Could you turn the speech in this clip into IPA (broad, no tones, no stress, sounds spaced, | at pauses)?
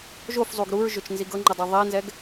ʒ o f zˤ u ɡ ɾ u ɹ ʒ ʊ t͡ʃ n z i ɡ ɤ ŋ͡ǃ ə dˤ ɤ ðˤ ɛ n z ɛ ɡ